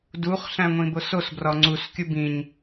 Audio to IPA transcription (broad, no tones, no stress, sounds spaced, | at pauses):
d u χ ɬ æ̃ ŋʷ ĩ b o s o s b r ɒ ŋ͡ǀ u s kʲ u b ĩ ɲ